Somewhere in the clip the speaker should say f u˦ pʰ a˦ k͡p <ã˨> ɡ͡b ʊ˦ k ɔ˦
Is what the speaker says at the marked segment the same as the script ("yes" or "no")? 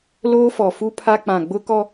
yes